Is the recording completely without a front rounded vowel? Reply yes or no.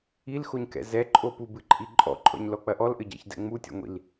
yes